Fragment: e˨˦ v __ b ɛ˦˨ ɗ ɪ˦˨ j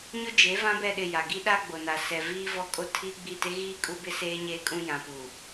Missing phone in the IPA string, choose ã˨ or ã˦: ã˦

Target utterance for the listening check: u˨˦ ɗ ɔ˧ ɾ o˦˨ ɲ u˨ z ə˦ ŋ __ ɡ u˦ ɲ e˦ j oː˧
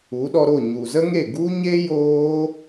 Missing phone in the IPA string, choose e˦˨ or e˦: e˦˨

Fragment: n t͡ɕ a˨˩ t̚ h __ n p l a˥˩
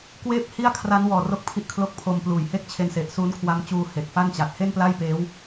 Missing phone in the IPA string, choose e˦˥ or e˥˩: e˥˩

